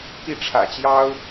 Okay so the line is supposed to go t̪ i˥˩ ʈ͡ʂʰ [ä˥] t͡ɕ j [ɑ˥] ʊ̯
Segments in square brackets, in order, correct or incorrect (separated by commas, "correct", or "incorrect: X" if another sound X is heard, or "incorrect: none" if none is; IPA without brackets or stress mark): incorrect: ä̰˨˩, correct